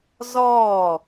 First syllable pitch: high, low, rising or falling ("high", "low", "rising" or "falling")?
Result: falling